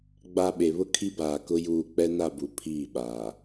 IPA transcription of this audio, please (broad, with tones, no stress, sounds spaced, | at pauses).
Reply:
ɡ͡b a˨ ɓ e˨ β ʊ˦ kʰ i˦ b aː˨ k ʊ˦ j uː˦˨ k͡p ɛ˦ n a˦˨ b u˨ pʰ iː˦˨ ɓ aː˨